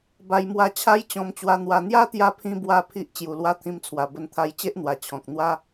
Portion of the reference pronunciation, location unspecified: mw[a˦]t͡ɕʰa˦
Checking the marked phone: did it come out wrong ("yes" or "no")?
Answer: yes